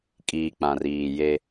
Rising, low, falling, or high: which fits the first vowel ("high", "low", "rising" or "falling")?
low